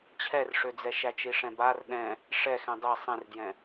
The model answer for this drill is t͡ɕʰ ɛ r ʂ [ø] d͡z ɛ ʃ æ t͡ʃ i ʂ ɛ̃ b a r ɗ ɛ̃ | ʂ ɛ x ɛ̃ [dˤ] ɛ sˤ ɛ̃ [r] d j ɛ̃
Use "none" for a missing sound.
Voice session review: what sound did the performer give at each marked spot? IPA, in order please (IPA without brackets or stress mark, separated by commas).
ø, dˤ, r